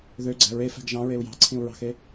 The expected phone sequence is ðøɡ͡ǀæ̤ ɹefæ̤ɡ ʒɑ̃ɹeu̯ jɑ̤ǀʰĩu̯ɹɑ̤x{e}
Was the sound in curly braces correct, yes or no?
yes